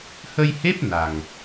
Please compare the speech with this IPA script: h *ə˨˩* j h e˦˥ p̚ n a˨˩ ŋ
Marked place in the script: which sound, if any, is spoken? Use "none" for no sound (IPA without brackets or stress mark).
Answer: ə˧